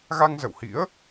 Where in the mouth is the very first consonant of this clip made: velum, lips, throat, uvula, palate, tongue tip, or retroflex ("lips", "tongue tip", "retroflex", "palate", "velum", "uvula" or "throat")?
velum